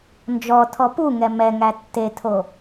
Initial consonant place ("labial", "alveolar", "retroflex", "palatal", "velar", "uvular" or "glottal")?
alveolar